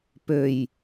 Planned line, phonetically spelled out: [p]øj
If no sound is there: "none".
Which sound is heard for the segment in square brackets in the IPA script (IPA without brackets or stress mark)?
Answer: p